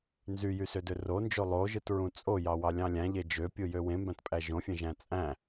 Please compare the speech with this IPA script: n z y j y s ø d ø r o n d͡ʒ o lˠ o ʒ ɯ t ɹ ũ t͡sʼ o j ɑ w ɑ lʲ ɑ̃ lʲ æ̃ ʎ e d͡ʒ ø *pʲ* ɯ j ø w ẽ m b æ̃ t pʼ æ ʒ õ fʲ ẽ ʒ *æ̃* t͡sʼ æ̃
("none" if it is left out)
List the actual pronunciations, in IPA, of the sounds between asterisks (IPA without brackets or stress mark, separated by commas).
pʲ, æ̃